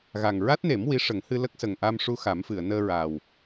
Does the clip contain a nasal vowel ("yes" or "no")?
no